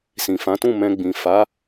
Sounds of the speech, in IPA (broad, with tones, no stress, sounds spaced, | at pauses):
s ĩ˨ f ã˨˦ t ũ˦˨ m ɛ̃˧ ɡ͡b ĩ˨ f a˨˦